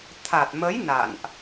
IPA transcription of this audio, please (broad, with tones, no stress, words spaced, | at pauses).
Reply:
t̪ʰa˨˩t̚mə˨˦j na̰˧˨nʔ